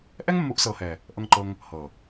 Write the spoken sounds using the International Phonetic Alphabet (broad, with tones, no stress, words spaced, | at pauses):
ʔɛ˦ŋmːu˨˦ʔsɤː˨hɛː˨ | ʔɤ˧ŋǃɤ˧ŋ | hɤ˨